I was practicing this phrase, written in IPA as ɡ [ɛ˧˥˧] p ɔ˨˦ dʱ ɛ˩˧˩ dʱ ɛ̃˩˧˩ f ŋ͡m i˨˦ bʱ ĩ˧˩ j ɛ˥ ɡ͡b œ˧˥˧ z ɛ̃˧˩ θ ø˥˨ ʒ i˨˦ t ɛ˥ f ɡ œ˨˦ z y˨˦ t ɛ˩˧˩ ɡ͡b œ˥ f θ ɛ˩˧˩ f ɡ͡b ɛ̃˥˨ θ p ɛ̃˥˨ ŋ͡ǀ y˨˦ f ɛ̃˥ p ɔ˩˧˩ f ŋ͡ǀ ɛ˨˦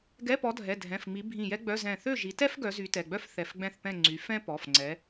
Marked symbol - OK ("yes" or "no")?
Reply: yes